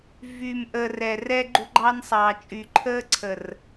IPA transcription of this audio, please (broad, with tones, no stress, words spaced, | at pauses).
vyː˨mʔəː˨ rɛ˨ rɛ˦ɡ͡ǃṳ˦ɡ͡ǃɑ˦nsˤɑː˨ t͡ʃʼyː˨ǃʰəː˦ǀʰə˨r